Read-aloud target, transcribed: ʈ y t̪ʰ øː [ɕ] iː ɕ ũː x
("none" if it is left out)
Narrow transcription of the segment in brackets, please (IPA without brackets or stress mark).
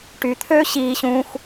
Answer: ɕ